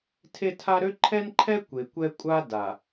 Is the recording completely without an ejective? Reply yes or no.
no